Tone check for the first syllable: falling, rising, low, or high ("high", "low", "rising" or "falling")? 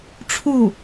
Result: falling